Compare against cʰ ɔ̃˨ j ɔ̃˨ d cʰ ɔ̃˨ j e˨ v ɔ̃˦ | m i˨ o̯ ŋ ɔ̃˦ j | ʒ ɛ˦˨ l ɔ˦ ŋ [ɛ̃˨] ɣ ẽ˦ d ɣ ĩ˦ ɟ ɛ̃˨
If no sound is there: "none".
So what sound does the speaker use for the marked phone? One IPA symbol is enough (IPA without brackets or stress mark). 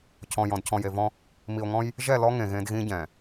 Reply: ẽ˨